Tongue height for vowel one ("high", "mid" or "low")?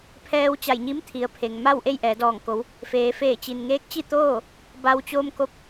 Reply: mid